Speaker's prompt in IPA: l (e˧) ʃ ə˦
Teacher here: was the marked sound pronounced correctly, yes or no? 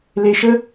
yes